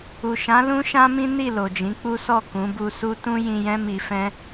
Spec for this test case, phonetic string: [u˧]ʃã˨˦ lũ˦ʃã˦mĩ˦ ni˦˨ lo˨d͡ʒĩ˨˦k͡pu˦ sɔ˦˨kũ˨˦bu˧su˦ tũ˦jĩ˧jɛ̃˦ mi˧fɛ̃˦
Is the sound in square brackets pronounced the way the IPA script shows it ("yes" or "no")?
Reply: no